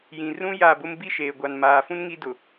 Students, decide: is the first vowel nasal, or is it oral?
nasal